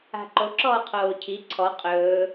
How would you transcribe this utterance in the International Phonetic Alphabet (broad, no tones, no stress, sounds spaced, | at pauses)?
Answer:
a̤ ǃ o ǁ ɔː qʰ oː cʰ i ǀʰ ɔ qʼ ɵː